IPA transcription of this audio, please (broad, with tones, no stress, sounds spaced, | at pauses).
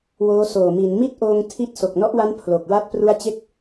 w oː˦˥ s oː˨˩ m i˩˦ n m i˥˩ t̚ ʔ oː˧ ŋ tʰ i˥˩ t̚ s o˨˩ k̚ n ɔ˦˥ ʔ w a˦˥ n pʰ l o˨˩ k̚ w a˥˩ t̚ p r u˦˥ a̯ t͡ɕ e˦˥ k̚